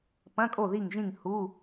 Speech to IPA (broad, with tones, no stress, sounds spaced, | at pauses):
p ɐ̃˧˥˧ kʼ o˦˨ ð i˦˨ ŋ ʒ ĩ˦˨ ŋ h u˧˥˧